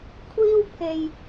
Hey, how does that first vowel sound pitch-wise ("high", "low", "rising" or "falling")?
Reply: high